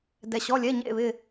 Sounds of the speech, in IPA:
d ɛ˩ ɕ ɔ˩˧˩ lʲ ɛ˩˧˩ ɲ ḛ˧˩ β ɪ˧˩

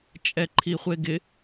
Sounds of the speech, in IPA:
t͡ʃʼ ɛ ǃʰ i χʷ e ɡ ɪ

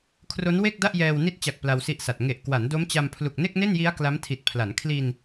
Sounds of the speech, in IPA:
kʰ r o˦˥ n w e˥˩ k̚ d a˥˩ ʔ j ɛː˧ w n i˦˥ t̚ t͡ɕ a˨˩ k̚ p l a˧ w s i˦˥ ʔ s a˨˩ t̚ ŋ e˨˩ ʔ k w a˩˦ n d o˦˥ m t͡ɕ a˧ m pʰ l u˨˩ k̚ n e˥˩ k̚ n e˥˩ n j i˦˥ a̯ k l a˦˥ m tʰ i˨˩ t̚ pʰ l a˩˦ n kʰ l i˧ n

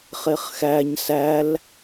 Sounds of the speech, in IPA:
χ e χ x æ ɲ s æ l

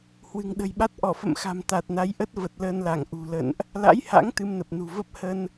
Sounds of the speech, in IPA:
h w ɨ̤˨˩ ŋ ɗ ə̤˨˩ j ɓ a˦˥ t̚ ʔ ɔ˧˩ f ə̰˧˨ m x a̤˨˩ m t̪ a˨˩ t̚ n a˨˦ j ʔ ə˦˥ t̚ v ə˨˩ t̚ l əː˧ n l a˧˩ ŋ ʔ ṳ˨˩ l ə̰˧˨ n ʔ | l a̰˧˥ j h a̰˧˥ ŋ t̪ ɨ˧ m n ə˨˩ p̚ n ṳ˨˩ v ə˦˥ p̚ h ə˧ n

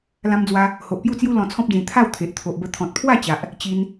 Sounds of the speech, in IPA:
l ã˧ m d͡z w a˧ | h o˨ ʔ p j u˥˧ t͡s j u˦ l ɔ̃˧ t͡sʰ ɔ̃˦ p̚ d͡z ĩ˧ t̪ʰ a˥˧ w t̪ʰ e˨ ʔ t̪ʰ o˨ ʔ b ə˧ t̪ʰ ɔ̃˨ t̚ pʰ w a˥˧ t͡ɕ a˨ ʔ | t͡ɕ i˧ n

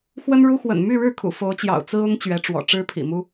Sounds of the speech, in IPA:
x w ə˥ n ɻ u˥ x w ə̰˨˩ n m y˥˧ ɻ ɻ̩˥˩ kʰ ṵ˨˩ f o˧˥ ʊ̯ t͡ɕ j ɑ̰˨˩ ʊ̯ t͡s ɹ̩˥ ʊ˥ ŋ t͡ɕ ɥ ɛ˧˥ ʈ͡ʂ w ɔ̰˨˩ ʈ͡ʂ ɻ̩˥ pʰ ḭ˨˩ m u˥

